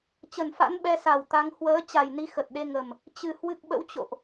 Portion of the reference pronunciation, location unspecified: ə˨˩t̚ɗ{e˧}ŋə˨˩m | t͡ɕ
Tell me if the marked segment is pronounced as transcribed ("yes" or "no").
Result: yes